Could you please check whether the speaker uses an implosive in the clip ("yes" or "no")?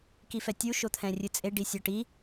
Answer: no